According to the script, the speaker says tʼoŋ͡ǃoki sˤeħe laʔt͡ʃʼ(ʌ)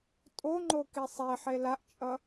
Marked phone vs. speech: correct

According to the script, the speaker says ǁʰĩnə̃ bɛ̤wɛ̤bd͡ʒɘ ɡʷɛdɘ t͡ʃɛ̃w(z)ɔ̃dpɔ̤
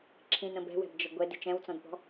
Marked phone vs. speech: incorrect: t͡s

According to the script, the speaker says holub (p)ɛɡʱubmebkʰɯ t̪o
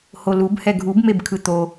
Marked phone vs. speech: incorrect: h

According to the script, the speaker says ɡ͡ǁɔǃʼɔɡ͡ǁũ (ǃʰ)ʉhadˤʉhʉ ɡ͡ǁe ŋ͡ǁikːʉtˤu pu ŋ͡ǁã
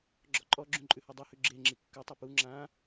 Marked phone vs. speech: incorrect: ǃʼ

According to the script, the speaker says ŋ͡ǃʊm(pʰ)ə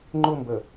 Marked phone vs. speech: incorrect: b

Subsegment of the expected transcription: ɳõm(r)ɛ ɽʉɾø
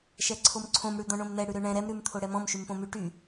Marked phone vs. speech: incorrect: n̪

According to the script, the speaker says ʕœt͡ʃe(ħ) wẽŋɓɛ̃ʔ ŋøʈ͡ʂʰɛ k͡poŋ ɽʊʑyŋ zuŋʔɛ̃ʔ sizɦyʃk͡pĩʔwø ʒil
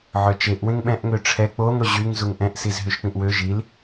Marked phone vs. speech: incorrect: ʔ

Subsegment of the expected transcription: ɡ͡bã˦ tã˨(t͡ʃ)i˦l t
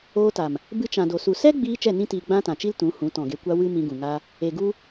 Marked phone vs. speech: correct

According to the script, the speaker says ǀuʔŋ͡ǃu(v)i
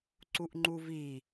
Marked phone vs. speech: correct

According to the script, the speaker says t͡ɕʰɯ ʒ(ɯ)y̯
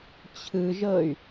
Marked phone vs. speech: incorrect: ɤ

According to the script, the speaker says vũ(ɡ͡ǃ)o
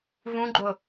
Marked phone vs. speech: correct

